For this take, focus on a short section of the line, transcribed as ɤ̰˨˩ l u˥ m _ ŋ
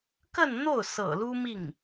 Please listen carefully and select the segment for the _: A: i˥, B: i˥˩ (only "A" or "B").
B